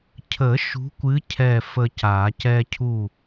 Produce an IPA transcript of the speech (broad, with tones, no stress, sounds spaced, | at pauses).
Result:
cʰ ə˨˩˦ ʃ ṳ˨˦ kʷ ɨ˨˦ cʰ ɛ˥˨ f ə˦ c a˨˩˦ c ɛ˦ cʰ u˥˨